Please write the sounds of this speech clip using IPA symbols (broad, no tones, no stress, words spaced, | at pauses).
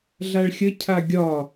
ɮaɭxʲə cʰaɡʲɒ